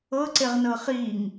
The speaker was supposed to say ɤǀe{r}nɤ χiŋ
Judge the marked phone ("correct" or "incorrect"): incorrect